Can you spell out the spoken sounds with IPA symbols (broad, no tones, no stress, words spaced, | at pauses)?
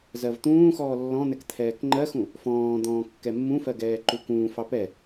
zɜvt̪ũːxɔː lːɔ̃n̪ɛk t̪ʰɛːkŋ͡ǃɜxũ | fɔ̃ːd̪ɔ̃ː kːɛmːũfɜ ɡɛːǃukũːfɑ pɛ